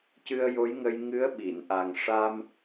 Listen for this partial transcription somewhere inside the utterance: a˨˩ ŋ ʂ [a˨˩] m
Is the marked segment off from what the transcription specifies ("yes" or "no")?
yes